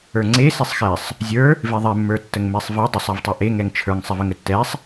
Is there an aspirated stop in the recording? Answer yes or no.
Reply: yes